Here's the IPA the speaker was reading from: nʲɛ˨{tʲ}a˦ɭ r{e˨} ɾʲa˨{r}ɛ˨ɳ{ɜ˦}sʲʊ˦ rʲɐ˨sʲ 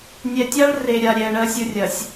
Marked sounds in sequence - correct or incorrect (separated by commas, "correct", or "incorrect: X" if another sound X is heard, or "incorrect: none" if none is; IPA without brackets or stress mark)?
correct, correct, incorrect: ɾʲ, correct